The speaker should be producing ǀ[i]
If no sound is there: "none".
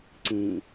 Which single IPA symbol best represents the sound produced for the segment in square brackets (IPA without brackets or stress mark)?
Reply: ĩ